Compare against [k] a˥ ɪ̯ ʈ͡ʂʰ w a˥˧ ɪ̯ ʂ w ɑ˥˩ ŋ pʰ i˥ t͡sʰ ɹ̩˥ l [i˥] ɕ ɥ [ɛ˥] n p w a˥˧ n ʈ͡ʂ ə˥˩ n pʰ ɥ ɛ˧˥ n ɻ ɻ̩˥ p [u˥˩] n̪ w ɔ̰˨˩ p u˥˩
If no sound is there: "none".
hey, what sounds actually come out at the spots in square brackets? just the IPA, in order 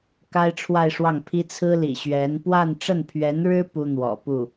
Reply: k, ḭ˨˩, ɛ˧˥, u˥

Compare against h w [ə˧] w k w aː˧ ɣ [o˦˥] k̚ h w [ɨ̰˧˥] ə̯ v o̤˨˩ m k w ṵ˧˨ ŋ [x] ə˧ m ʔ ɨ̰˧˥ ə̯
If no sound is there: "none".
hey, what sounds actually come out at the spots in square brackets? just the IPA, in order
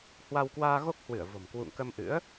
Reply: a˧, o˦˥, ɨ˧˩, k

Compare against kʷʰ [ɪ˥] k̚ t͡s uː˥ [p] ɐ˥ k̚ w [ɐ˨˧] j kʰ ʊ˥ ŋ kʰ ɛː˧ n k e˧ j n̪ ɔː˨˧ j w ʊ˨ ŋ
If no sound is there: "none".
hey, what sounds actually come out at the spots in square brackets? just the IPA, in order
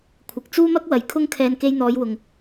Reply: ɪ˨, m, ɐ˨˧

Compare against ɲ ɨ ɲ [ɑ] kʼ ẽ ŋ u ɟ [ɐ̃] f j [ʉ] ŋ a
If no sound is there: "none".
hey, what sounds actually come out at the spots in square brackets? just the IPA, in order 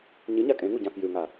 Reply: a, ã, ʉ

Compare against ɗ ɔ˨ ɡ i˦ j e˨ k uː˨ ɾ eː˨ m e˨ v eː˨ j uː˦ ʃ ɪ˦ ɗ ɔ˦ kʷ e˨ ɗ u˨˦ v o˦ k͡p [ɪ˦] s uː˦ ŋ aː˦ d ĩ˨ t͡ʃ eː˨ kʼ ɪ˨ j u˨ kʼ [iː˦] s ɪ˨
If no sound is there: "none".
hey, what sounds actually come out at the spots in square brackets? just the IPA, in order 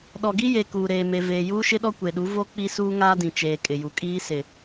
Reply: i˦, iː˦

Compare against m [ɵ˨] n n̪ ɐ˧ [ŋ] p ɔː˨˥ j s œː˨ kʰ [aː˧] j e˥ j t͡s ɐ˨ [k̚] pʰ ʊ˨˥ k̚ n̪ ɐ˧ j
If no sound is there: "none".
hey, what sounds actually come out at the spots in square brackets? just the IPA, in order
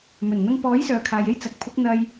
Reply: ɵ˨˩, ŋ, aː˨, k̚

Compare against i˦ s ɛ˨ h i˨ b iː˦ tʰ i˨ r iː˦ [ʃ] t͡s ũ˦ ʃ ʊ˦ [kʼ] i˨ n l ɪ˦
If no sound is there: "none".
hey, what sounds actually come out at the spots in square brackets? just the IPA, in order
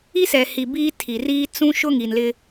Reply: none, ŋ

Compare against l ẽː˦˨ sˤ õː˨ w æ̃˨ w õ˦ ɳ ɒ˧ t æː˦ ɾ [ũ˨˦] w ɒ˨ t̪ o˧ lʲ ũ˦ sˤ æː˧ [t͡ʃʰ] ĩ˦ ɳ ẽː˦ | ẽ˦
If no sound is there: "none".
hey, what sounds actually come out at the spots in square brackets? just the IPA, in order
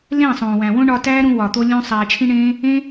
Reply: ũ˧, t͡ʃʰ

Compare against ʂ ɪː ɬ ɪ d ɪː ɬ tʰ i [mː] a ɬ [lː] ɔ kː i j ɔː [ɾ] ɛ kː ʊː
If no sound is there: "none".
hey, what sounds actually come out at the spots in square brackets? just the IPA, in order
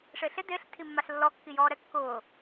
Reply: mː, lː, ɾ

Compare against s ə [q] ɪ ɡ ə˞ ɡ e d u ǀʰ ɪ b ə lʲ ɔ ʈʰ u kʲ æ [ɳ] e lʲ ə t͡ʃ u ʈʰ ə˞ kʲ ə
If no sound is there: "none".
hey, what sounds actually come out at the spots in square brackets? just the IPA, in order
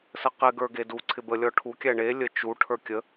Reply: q, ɳ

